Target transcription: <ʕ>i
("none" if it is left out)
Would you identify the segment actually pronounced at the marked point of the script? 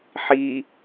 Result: ħ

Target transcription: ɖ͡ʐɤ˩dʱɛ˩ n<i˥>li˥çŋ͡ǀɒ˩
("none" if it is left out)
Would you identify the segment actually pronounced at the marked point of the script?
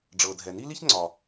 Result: i˥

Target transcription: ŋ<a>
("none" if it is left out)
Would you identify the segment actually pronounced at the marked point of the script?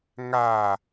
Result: a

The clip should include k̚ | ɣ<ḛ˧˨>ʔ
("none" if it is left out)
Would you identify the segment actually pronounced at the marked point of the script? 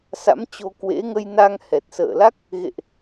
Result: ḛ˧˨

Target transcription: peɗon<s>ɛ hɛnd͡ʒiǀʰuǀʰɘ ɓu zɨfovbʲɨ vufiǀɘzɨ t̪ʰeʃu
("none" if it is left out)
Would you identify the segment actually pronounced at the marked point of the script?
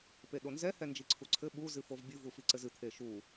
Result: z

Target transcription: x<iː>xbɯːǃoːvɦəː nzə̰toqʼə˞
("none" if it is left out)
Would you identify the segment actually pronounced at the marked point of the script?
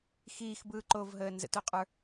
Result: iː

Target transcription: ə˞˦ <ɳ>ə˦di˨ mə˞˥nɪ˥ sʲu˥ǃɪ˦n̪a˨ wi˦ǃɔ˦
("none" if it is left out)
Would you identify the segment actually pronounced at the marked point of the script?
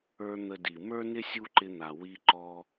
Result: n̪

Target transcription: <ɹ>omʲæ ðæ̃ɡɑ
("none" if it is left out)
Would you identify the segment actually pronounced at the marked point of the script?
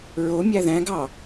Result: ɹ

